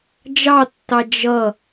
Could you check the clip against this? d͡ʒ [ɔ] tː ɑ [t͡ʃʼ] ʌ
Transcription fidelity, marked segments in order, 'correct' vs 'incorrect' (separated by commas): incorrect, incorrect